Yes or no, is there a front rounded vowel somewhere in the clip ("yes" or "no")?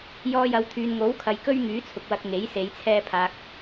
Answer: yes